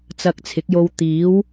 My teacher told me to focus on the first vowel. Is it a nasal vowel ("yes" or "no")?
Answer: no